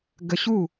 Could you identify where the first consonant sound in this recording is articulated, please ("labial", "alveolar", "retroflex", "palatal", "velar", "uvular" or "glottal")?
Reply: velar